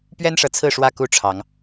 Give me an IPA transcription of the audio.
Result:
pɥɛ˦nʂɤ˨t͡sʰɹ̩˥˨ ʂwä˥˨ku˦ʈ͡ʂʰɑ˨˦ŋ

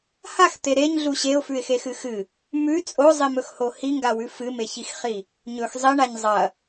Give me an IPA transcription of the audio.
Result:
haxt̪e ɾeɲɮu ɕeʊ̯fʉɪ̯xexɨ xɨ | mʉ t͡sʼozˤimɵxho hiŋɡawʉ fɨmeçixχi | ɲɵx zˤiɳaɲ zˤɐ

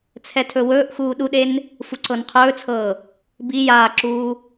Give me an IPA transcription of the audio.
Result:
t͡sʰɛtʰɵwɵːʔxuː ɗuɗen | fuǀɤnqʰɵːt͡sʰɤː | bi jaːǁuː

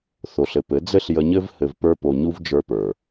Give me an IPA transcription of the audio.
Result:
θo˨ɬɘ˨pɘ˨˦ d͡zɘ˦ɬjə˧ɲɘ˦v hɘ˧vpə˞˦ po˧ɲu˦v d͡ʒə˞˦pə˞˨

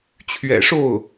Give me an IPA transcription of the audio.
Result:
t͡ɕʰɥɛ̰˨˩ʂo˥˩ʊ̯

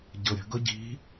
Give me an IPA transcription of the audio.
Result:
ɟɤɾʲə̤ ɡɤɟi̤

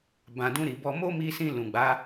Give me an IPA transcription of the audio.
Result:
bã˨dũ˧ɾi˨bɔ˧ mo˦mi˧sĩ˧ lũ˨ɡ͡ba˨˦

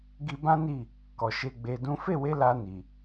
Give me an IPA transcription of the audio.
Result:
ɡi˧bã˦ni˦˨ | kɔ˨ʃe˧ ɡ͡be˧dũ˦ fe˦˨we˧ la˧ni˨

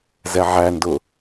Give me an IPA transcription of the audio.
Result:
zɛʕændʊ

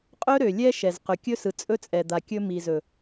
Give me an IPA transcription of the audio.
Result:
qʼɵ˦ɾø˨ lʲɛ˦ ʃɛ˨zqɵ˨ kʲɵ˦sɯ˨ t͡sʼɵ˦t͡sʼɛ˨d̪a˨ kʲɵ˦ mi˨ zɵ˨

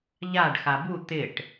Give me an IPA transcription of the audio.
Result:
ʎaɖ xabu t̪ɪʈ

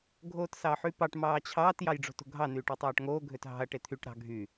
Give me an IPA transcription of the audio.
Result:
ɡʱoːtsɑħypɑʈ mɑːt͡ɕʰɑːt jɑjɖ͡ʐo̤to̤ɡʱɑ nyːʈutˤɑːʈŋoː ɡʱøtɦɑ̤ɐ̯ ʈet̪ʰyʈ ɾɑ̤ ɡʱy

